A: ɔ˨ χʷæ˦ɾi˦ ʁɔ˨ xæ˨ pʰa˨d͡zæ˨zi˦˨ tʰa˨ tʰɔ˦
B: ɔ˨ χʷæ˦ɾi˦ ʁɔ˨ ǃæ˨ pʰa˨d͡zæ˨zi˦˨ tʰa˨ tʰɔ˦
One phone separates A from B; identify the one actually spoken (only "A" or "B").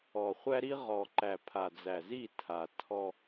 B